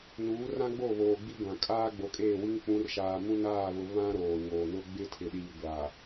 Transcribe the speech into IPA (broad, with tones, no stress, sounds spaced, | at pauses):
n uː˨˦ r ã˦ ɡ͡b o˦˨ β oː˨ ɡ͡b i˦ ɡʷ ã˨ kʼ aː˦ ɡ͡b o˨ kʼ eː˦˨ w i˦ ŋ k͡p ũ˨˦ r ʃ aː˨ m ũ˦ n aː˦˨ β ʊ˨ β ã˦ ɾ oː˨ ɲ oː˨ n ʊ˦ ɡ͡b ɪ˦ tʰ ɪ˨ ɗ iː˨ ɡʷ aː˨